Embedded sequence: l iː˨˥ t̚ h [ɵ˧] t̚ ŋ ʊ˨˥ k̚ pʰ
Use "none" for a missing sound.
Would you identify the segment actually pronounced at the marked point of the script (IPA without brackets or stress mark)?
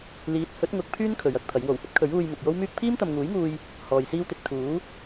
ɵ˨˥